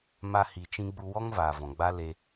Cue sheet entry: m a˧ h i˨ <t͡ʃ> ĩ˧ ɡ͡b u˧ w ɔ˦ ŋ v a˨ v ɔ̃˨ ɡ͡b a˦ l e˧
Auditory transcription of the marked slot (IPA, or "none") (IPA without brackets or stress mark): t͡ʃ